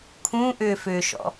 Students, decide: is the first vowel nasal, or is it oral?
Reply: nasal